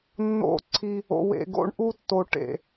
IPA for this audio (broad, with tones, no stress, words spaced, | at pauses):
nːo̰˦˨ǀʰi˦ | o̰˨wḛ˨ ɡo̰˦ɳʔu˦tːo˨ ʈḛ˨